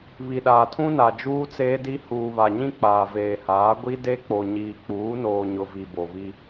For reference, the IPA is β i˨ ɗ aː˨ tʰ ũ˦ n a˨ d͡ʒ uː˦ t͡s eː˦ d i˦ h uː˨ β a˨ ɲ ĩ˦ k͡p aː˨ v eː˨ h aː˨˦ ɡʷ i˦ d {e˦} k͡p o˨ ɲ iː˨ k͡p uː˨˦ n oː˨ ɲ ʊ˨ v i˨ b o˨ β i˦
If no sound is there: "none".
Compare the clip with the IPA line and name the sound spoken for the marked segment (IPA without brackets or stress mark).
e˦